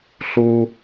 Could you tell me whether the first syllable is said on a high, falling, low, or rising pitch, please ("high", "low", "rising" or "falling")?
high